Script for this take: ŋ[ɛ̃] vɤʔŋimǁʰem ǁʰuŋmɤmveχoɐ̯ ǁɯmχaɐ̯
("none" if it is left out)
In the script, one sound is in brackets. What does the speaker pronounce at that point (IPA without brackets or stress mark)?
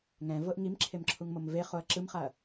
ɛ̃